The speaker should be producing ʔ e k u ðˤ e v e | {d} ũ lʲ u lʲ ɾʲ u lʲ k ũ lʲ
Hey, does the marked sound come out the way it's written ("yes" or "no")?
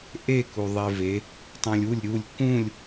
no